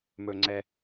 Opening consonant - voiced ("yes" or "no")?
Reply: yes